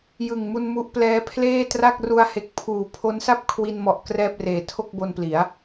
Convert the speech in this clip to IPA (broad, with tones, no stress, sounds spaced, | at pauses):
j ɯ˨˩ ŋ m u˧ n m u˦˥ ʔ p l ɛː˦˥ pʰ l eː˥˩ t r a˥˩ k̚ r u˧ a̯ h e˨˩ k̚ pʰ uː˨˩ pʰ o˦˥ n s a˥˩ p̚ kʰ w i˧ n m ɔ˨˩ ʔ k r ɛː˥˩ p̚ r eː˨˩ tʰ o˥˩ k̚ b o˧ n p l i˩˦ a̯